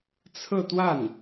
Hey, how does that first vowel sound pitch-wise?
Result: falling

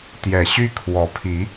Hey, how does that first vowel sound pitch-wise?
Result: low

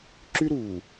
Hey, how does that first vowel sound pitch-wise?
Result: high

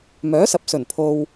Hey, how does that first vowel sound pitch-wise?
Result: rising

